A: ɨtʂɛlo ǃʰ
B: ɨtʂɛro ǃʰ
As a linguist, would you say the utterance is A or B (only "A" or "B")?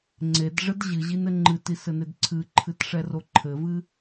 B